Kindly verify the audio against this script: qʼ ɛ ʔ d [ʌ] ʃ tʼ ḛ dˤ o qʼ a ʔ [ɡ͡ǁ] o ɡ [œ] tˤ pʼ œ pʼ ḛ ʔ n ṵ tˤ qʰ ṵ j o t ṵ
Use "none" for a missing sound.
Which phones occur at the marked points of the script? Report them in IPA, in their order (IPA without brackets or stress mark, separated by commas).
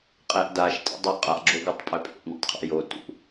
a, ɡ͡ǁ, œ